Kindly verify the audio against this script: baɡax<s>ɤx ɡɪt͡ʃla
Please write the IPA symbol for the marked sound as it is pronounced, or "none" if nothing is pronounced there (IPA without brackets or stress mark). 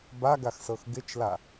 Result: s